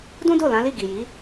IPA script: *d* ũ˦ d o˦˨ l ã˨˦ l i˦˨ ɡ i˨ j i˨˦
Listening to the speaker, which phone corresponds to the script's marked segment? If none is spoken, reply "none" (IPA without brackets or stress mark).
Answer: d